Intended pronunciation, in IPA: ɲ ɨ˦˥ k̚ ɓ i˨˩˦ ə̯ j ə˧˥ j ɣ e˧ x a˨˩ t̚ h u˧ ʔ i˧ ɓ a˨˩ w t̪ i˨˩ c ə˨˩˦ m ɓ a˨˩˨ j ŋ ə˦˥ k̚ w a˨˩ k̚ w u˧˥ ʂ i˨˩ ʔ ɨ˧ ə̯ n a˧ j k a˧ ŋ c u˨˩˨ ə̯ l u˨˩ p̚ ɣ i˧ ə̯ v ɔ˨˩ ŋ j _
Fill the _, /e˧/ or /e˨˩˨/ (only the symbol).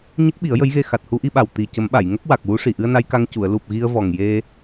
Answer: e˧